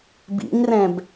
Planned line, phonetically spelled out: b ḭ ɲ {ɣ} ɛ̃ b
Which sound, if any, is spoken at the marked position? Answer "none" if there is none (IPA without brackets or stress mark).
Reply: r